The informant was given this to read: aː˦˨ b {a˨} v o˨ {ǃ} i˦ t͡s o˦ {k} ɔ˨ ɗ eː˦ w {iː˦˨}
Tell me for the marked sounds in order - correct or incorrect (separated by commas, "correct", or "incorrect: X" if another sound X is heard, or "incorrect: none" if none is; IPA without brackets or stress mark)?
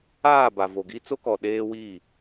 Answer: correct, incorrect: ɡ, correct, correct